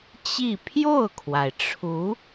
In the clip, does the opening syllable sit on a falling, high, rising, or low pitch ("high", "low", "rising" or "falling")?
falling